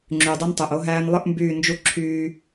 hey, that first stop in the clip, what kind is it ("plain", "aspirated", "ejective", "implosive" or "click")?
click